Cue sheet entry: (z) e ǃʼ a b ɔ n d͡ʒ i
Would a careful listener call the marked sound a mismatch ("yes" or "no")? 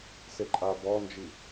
yes